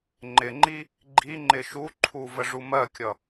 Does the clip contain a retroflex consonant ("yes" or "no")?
yes